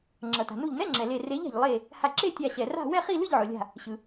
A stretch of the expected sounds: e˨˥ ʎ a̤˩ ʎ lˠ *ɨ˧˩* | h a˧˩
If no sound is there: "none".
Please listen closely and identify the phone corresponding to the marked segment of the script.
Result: e˧˩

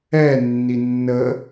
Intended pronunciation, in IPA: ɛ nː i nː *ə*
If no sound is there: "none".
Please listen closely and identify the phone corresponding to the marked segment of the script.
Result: ə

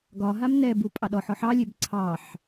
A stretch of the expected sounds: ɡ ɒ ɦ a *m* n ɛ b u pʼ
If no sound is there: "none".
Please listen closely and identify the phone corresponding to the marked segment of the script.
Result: m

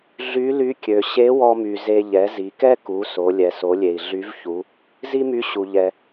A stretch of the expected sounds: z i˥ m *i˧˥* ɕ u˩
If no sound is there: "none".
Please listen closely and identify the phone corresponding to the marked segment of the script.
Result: y˧˥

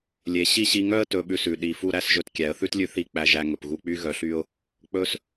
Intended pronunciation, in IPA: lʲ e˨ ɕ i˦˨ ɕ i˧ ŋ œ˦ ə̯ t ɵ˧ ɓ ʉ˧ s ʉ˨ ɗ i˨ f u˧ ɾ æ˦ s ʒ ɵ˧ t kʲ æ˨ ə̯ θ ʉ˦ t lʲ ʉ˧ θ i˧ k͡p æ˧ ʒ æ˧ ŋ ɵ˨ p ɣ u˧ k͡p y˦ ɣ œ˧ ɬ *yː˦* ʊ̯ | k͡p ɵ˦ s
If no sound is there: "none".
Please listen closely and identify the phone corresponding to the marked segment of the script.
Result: y˦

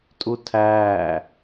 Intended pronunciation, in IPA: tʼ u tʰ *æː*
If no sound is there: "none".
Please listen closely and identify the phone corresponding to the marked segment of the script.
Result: æː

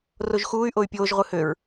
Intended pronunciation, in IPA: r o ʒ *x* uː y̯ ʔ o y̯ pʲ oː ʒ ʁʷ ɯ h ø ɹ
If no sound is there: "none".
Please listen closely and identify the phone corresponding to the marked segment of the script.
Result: x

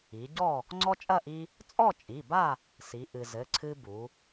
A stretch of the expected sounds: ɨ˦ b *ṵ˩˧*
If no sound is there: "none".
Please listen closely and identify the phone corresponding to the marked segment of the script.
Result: u˩˧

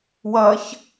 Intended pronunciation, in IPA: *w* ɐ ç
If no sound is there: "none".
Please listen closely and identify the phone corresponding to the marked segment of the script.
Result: w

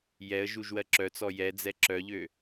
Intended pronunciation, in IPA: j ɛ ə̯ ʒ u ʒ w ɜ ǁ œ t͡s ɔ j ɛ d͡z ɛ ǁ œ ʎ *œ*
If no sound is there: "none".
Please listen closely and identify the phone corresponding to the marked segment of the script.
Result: ø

